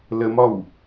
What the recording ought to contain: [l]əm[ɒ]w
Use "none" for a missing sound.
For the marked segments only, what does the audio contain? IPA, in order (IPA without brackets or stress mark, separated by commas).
l, ɒ